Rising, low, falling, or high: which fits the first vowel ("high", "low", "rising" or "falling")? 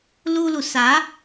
high